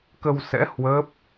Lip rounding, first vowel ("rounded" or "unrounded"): unrounded